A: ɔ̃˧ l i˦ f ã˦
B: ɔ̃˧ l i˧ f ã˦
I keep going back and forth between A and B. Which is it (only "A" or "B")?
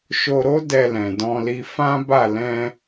B